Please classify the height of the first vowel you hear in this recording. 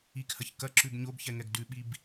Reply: high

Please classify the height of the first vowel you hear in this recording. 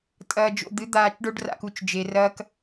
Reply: low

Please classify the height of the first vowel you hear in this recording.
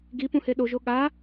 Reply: high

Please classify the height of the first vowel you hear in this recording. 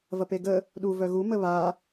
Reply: low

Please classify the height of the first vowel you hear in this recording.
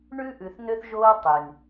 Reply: high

